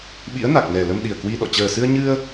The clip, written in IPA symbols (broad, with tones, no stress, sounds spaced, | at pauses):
ɓ ḭ˧˥ ə̯ n a˨˩ k̚ n ɛ˨˩ l ə˧ m ɗ i˨˩ ə̯ k w i˧ ɗ ɔ̰˧˨ t͡ɕ əː˨˩ s ɨ˧ ə̯ ɲ ɨ˧ ə̯